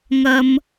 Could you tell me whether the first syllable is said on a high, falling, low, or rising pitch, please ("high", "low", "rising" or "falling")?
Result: high